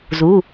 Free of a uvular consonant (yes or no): yes